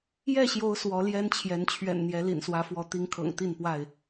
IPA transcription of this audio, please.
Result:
j ɛ˥˨ ɕ j o˨˦ ʊ̯ s w ɔ˨˦ l j ɛ˦ n t͡ɕʰ j ɛ˨˦ n t͡ɕʰ ɥ ɛ̰˨˩ n n̪ j ɛ˨˦ l ḭ˨˩ n s w ä˨˦ f w ɔ˨˦ t̪ i˨˦ ŋ kʰ ɤ̰˨˩ ŋ t̪ i˥˨ n p w a˥˨ ɪ̯

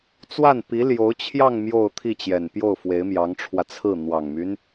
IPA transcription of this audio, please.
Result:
t͡s w a˥˩ n p i˧˥ l j o˧˥ ʊ̯ t͡ɕʰ j ɑ˥˧ ŋ m j o˥˧ ʊ̯ t̪ʰ i˥˩ t͡ɕ j ɛ˨˩ n p j o˥˩ ʊ̯ f w e˧˥ ɪ̯ m j ɑ˧˥ ŋ ʈ͡ʂʰ w ä˧ t͡sʰ ɹ̩˥˩ n̪ w ɑ˨˩ ŋ m y˦ n

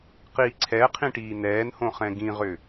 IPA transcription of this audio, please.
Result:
q i ǀʰ ɛ qʰ ĩ ʈ iː n ɛː n h õ χ ɛ̃ ɡ ĩ ʁ ʏ

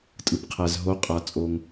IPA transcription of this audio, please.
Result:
tʼ ɯ˩ p qʰ æ˩ z ɦ o˩˧ qʼ a˩ t͡sʼ o˩ ŋ

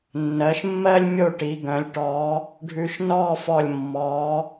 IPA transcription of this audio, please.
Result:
nː ɜ˩˧ ʃ mː ɜ˥ lʲ mʲ o˥˧ ʈ i˩˧ ɡ œ̃˩˧ lʲ ʈ ɔː˩˧ | ɖʱ ʉ˧ ʃ n ɔː˥˧ f ɔ˧˩ lʲ mː ɔː˩˧

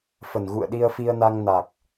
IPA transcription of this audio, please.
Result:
f ə˨˩ n ɣ ṵ˧˨ ə̯ ɗ i˧ ə̯ f i˧ ə̯ n a˧ ŋ n a˨˩ k̚

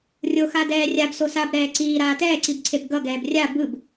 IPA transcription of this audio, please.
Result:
rʲ o x a d ɛː rʲ a b s o s a b ɾ ɛː ǀ iː ɾ aː t ɛː ǀ i b ǀʰ e b ɡ ʌ ɡ ɛː b rʲ a b ɯ b

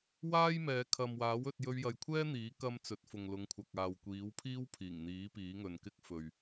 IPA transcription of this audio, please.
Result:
w aː˥ j m ɛː˨˧ kʰ ɐ˨ m w aː˨˥ w ɵ˧ t̚ j ɵ˧ ɥ j ɐ˨ j kʷʰ ɛː˥ n̪ iː˨˥ k ɐ˥ m t͡s ɵ˨˥ t̚ f ʊ˨ ŋ l ʊ˨˧ ŋ kʷʰ ɐ˨ k̚ aː˨ w kʷ iː˨˥ w pʰ iː˥ w pʰ iː˨˩ ŋ n̪ iː˨˥ p iː˨˥ ŋ ɵ˨ n k ɪ˥ k̚ f ɵ˨ ɥ

